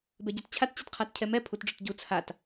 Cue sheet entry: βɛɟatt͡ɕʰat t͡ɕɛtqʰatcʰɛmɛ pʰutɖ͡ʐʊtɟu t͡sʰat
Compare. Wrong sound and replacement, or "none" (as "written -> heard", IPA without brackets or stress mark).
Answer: β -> b